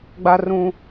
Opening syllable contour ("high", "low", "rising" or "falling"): high